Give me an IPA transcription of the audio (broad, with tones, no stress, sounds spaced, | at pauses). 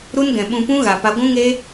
ɾ u˦ n ɡ ɛ̃˨ ɓ ũ˧ p ũ˦ ɣ a˧ p a˦ ɡʷ ũ˦ ŋ e˦